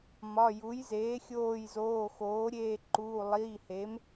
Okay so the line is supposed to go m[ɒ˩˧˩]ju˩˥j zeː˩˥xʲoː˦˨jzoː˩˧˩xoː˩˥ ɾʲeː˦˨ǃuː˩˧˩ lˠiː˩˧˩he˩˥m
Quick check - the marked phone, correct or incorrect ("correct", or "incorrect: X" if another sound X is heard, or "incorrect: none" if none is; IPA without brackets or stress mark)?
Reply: correct